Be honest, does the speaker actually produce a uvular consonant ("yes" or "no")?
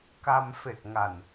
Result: no